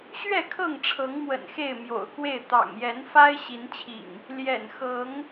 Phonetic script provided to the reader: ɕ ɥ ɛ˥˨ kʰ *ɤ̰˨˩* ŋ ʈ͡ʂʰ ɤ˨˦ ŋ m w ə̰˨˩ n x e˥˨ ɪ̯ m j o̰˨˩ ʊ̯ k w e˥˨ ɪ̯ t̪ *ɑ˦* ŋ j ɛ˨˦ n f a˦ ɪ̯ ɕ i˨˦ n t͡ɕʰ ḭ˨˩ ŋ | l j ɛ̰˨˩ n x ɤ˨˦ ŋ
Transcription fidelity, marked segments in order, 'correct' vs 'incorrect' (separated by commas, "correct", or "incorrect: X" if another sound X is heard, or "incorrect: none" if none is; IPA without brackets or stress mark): incorrect: ɤ˥˨, incorrect: ɑ̰˨˩